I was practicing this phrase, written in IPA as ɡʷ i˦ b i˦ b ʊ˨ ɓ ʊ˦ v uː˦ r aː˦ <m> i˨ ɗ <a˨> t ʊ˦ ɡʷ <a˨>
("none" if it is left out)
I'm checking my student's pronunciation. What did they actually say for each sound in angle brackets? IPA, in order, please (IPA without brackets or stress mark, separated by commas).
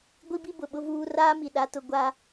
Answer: m, a˦, a˦